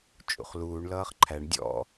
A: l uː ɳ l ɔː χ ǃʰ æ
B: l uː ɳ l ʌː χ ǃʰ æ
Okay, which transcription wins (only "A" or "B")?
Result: B